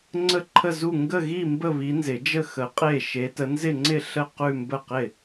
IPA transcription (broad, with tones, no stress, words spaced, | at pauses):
ŋ͡ǀə˥˧ǃʰə˥˧zu˥˧ ŋɡə˥˧ɣi˥˧ mbə˥˧βi˨˥nzɪ˨˩˦d͡ʒə˥˧ xə˨˥qʼe˥˩ ʃe˨˥tə˨˥nzɪ˥˧ŋ͡ǀɪ˥˧ ɬə˥˩ qʉ˥˧mbə˥˩qɪ˥˩